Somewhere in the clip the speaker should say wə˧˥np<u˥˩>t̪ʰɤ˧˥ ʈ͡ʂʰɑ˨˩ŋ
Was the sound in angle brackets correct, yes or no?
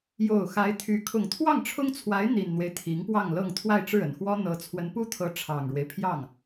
no